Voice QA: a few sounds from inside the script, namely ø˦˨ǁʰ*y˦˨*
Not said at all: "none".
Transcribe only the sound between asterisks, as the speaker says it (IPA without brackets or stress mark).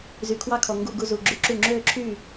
y˦˨